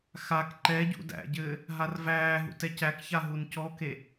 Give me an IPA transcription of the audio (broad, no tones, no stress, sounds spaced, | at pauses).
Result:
x a k ǃ ɛ ɟ ṵ d æ̰ ɟ ɘː | ɦ a r v æː ɦ ṵ t ɛ c æ k ç a ɦ u n c ɔ k e